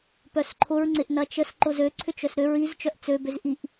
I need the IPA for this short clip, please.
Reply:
p œ s ǃʰ ʊ ɹ ŋ͡ǀ ɪ ʔ n ɐ t͡ʃ ə s ǃ ʊ z ø ǀʰ ʏ t͡ʃ œ s ɾ ʏ ɹ i z t͡ʃ œ ʔ t͡s ø b ʏ z ʔ i ʔ

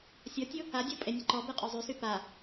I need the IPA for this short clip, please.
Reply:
sʲ ɔ tʲ u | a dʲ ɔ pʼ e nʲ ə ǃ ɔ b e qʼ œ zˤ y s y p a

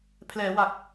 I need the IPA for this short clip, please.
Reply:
pʰ l ɛː˩˦ w a˨˩ k̚

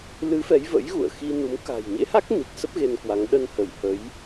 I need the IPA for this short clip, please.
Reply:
l ɨ˨˦ f ɛ˨˦ j v ə̰˧˥ j ɣ ṵ˧˨ ə̯ x i˧ n u˨˦ m k a̤˨˩ j ɲ ḛ˧˥ h a˦˥ k̚ n i˨˩ k̚ s ə˦˥ p̚ ɣ e˧ n k w a˨˦ ŋ ɗ ə˧ n h ə˧˩ j h ə˨˦ j

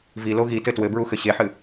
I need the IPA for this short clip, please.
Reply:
v i l o ɣ i t ɘ t w ɘ b ɹ u x ɘ ɕ e ħ ɨ

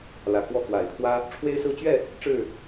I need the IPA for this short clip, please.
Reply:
l ä˨˩ k w ɔ˥˨ k w a˨˩ ɪ̯ pʰ w ä˦ | ʈ͡ʂʰ w e˦ ɪ̯ s ɹ̩˦ t͡ɕ ɥ ɛ˥˨ | ʈ͡ʂ ɻ̩˥˨

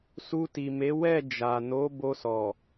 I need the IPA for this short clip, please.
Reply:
s u˧ t i˨ m e˨˦ w ɛ˦˨ d͡ʒ a˨ n o˨˦ b o˧ s ɔ˨

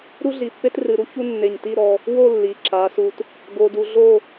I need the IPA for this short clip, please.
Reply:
ɾ u˥ ɮ i˧˩ pː e˥ t r ɨ˧ ɾ u˥ ç u˥ nː e˧˩ ɲ t i˥˧ ɾ ɔ˧ | w o˥˧ lː i˩˧ ǁ a˩˧ s u˧ t | ɡ o˧ d u˧ ɮ o˥˧

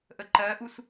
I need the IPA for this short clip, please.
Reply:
ʔ ə ǃ ɜ ʔ u s

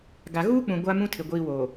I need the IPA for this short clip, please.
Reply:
ɡ a˨ ɣ uː˦ k͡p ũ˨ ɡʷ a˦ m ũ˦ tʰ ɪ˨ ɡʷ iː˨ w oː˨

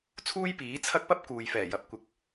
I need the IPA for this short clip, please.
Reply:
t͡sʰ uː˥ j p iː˨˥ t͡sʰ ɐ˥ k̚ p ɐ˥ p̚ k uː˨ j f ɛː˨˩ j ɐ˨˥ p̚ kʷ ɪ˨˥ k̚

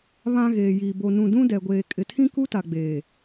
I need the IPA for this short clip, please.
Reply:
β ã˨ ɣ eː˨ j iː˨ b o˨ n ũ˨ d ũ˦ d ɛ˨ ɡʷ eː˨ kʼ ɪ˨ tʰ ĩ˦ k u˦ t a˨ ɡ͡b eː˨

